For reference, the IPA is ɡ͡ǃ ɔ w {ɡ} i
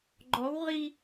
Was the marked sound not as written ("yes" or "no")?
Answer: yes